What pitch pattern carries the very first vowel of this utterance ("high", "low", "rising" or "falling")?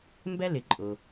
high